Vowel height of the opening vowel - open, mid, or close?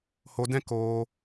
mid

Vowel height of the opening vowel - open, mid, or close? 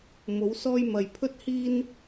mid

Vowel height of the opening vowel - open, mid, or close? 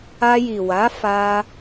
open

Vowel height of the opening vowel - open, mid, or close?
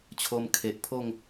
mid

